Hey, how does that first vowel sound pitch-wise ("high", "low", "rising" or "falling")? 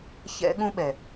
high